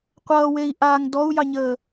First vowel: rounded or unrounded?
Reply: unrounded